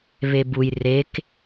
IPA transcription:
β e b u j r e k

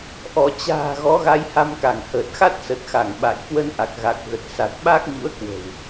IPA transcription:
ʔ ɔ˧˩ t͡ɕ a̤ː˨˩ ɣ ɔ˨˦ ɣ a˧ j h a˧ m k a˧˩ ŋ h əː˨˩ t̚ x a˦˥ t̚ s ə˨˩ t̚ x a˧˩ ŋ ɓ a̰˧˨ j k w ə˧ n ʔ a˨˩ k̚ ɣ a˨˩ k̚ ɣ ə˨˩ t̚ s a˨˩ t̚ ɓ aː˦˥ k̚ ɲ ṵ˧˥ ə̯ k w ə̤˨˩ w

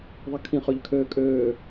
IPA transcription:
ðˤ e kʰ ĩ χ ø ʎ kʰ øː kʼ øː

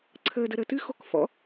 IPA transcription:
ǀʰ əː d ə ɾ əː t ɨ x o k f ɔ̰

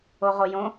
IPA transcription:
o ʁ o j õ

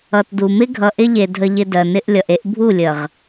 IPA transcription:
ʌ˨ t d u˨ m ɪ˦ ɡʱ ʌ˨ ʔ ɪ˦ ʎ e˨ dʱ ə˨ ʎ ɪ˨ d ɜ˨ n ɪ˦ ʔ lʲ ʌ˨ ʔ e˦ ʔ bʱ u˦˨ lʲ ə˨ ʁ

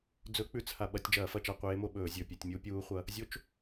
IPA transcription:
d͡z ɵ˧˥ k͡p ʉ˧˩˧ t͡s h a˩ ɓ ɐ˧˩˧ tʲ d͡ʒ ɐː˧˩˧ f ɐ˧˩˧ t͡ʃ a˧˩˧ qʷ eː˧˥ m o˧˩˧ ɓ ɵː˧˩˧ zʲ ɵ˩ pʲ ɐ˧˩˧ tʲ mʲ u˧˥ pʲ uː˧˥ χʷ ɐ˧˥ | zʲ o˧˥ t͡ʃ

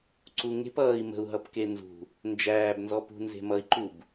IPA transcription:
ǀ u ŋ e̤ p ʌː i̯ m ə̤ u̯ ɦ ʌ p k e n z ṳ | n d͡ʒ æː b n z ɔ p ṳ n z e̤ m ʌ i̯ ǃ u b

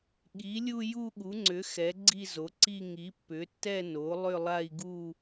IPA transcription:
ɠ i˩˥ lʲ u˥˧ j u˥˧ ɠ u˩˥ ŋ͡ǀ ʏ˩˥ x ɛ˩˥ ɡ͡ǀ i˥˧ z o˩˥ ǀ i˥˧ ŋ i˩˥ pː ʏ˩˥ tː ɛ˥˧ n o˩˥ lˠ ʏ˥˧ lˠ a˥˧ i̯ ɡ u˥˧

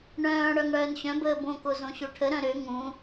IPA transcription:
ɳ œ̃ː ɽ œ ŋ ɽ œː n ɕ œ̃ b əː b õ k o z õ ɕ o ʈʰ ə ɾ œ̃ ɾ ø ŋ ũ

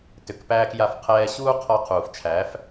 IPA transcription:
t ʏ˨ k p æː˧ k j a˧ f qʰ ɛː˧ ɕ uː˦ qʰ ɔ˧ qʰ uː˨ f t͡ʃʰ æ˨˦ f

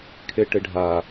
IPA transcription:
kʰ e ʈ e ɖʱ a

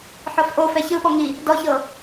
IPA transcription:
ħ ɔ f ʔ o f ɛ ç ɯ ɓ ɔ ŋ i | d ɔ ç ɤ

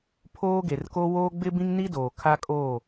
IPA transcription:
pʰ oː˦ ɡ e˨ r k o˦ w oː˦ ɡ͡b ɪ˦ b ĩ˦ ŋ n i˦ d oː˨ kʰ a˦ kʼ oː˦˨

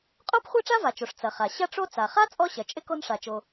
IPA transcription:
qʼ o˥ p χʷ a˥ ʈ͡ʂ a˥ v a˩ t͡ʃ o˩ ʂ t͡s ɐ˩ χ a˩ ɕ ɐ˥ ʈ͡ʂ o˥ t͡s a˩ χ a˥ t͡sʼ ɔ˥ ɕ ɐ˩ t͡ʃʼ ɪ˥ k o˥ n ʂ a˩ t͡ʃ o˩

